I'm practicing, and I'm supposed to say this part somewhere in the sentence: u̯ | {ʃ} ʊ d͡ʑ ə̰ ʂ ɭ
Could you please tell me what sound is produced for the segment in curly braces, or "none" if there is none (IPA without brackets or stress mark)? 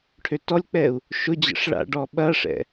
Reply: ʃ